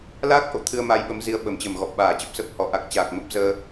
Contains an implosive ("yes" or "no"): yes